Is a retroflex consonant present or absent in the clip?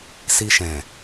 absent